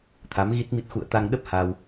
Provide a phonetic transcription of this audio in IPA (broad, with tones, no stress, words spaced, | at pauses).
t̪ʰa˨˦mɣi˦˥t̚mi˦˥t̚ xṵ˧˨ə̯t̪a˧ŋɗə˦˥p̚ ha˧w